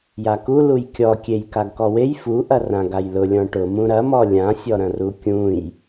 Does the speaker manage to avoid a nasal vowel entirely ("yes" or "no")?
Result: no